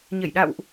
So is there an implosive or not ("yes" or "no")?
yes